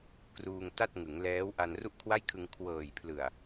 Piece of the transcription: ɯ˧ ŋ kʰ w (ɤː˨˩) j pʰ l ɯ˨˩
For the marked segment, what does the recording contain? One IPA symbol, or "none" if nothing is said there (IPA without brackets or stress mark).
ɤː˨˩